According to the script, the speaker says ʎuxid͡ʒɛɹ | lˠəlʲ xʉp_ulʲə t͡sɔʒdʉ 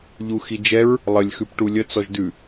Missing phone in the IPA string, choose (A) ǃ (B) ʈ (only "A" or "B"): B